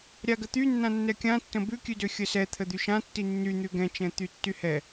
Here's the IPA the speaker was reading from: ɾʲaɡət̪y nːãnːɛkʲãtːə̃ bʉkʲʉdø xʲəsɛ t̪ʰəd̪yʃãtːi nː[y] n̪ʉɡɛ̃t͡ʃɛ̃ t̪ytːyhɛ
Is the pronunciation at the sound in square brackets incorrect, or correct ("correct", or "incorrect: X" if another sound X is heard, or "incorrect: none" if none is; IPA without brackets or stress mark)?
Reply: correct